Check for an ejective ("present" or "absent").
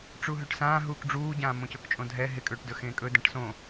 present